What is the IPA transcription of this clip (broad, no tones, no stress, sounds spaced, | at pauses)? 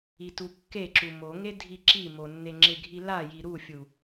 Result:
i t u kː e ǁ u m o ŋ e dʱ i ǁ i m o nː e ŋ͡ǁ ɪ ɡʱ i l a j i ɾ u fʲ u